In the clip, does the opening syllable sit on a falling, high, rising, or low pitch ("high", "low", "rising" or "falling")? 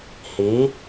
rising